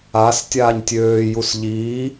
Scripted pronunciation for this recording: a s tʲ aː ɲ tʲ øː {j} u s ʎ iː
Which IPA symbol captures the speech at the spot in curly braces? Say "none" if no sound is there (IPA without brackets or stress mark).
j